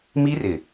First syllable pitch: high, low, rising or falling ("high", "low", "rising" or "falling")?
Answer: high